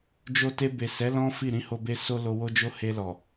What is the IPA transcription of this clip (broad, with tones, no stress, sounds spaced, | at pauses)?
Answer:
d͡ʒ o˧ t e˧ b e˨ s ɛ˨˦ l ɔ̃˦ f i˦˨ ɾ ĩ˧ h o˧ b e˧ s o˧ l o˧ w o˦ d͡ʒ o˦ h e˧ l ɔ˨